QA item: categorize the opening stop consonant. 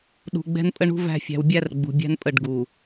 implosive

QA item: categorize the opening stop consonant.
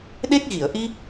implosive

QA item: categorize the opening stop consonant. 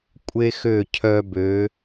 ejective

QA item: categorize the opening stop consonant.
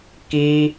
plain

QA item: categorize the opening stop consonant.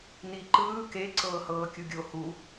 click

